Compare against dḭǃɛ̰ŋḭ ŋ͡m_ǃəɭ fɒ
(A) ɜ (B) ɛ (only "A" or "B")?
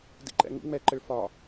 B